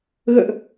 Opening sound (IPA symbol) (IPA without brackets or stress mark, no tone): ɣ